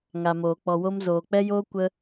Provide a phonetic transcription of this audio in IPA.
ŋa˨moː˨ k͡pɔ˨wo˦m zoː˨k͡pɛ˦joː˦ kʷə˦

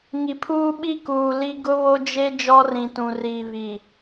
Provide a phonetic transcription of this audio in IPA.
ŋi˨pʰuː˦ ɓi˦kuː˨ li˦ ɡʊ˦βo˦d͡ʒe˦ d͡ʒɔ˦rĩ˨tũ˨riː˨ βi˨

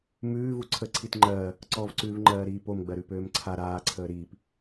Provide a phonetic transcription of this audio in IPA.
mʉː vuǀʰə ǀʰitŋ͡ǃɜː | ǀɔvǀʉːv ŋ͡ǃɜːɾiːpom ɡ͡bɜɾʉpøːmǀʰa ɾaːǀʰəː ɾiːp

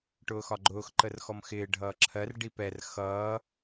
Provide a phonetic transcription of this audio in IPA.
ʈʊːxɒɡ͡ǃʊːx ǃərxɔmxɪː ɖʱʌːǁʰɜr ɖipɛr xʌː

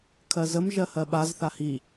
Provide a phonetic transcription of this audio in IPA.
kʰɜzəm ʒɜhɜɓaz θahi

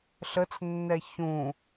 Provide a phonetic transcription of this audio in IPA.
ɬət͡snːɛ çũ

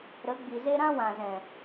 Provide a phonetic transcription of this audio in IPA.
ɾə˨˦ ɡ͡bi˨ze˦ ɾã˦wã˨zɛ̃˨

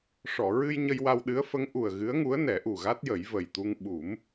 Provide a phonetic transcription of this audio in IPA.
ʂɔ˨˩˨ɹɨ˧j ɲə˧jwa˧wɗɨ˧˥ə̯ fə˧˥ŋ ʔu˨˩ə̯ ɣɨ˧˥ə̯ŋu˧˥ə̯nɛ˨˩˦ ʔu˨˩ɣa˦˥t̚jə˨˩˦j və˨˩jt̪u˧ŋ ɓu˨˩˦m

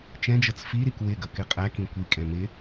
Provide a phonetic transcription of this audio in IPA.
t͡ʃɛ̃d͡ʒʌt͡s fiɾik wɪ ɡʌkɪqʼæ kĩkʷi kʼɛ̃mɪ

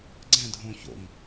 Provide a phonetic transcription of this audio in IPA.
ɡ͡ǀɛ̃ dʱõ ço̰ŋ

